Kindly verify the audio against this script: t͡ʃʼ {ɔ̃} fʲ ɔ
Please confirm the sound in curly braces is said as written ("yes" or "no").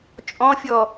yes